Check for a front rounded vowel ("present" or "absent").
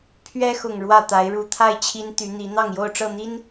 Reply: present